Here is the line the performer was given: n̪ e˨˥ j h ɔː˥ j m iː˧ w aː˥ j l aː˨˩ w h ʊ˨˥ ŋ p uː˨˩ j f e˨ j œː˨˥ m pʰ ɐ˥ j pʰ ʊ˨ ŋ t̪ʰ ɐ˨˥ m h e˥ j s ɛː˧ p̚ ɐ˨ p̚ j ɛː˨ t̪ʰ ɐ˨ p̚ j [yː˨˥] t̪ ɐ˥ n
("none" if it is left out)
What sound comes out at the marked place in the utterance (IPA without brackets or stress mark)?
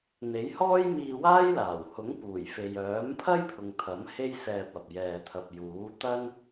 uː˨˥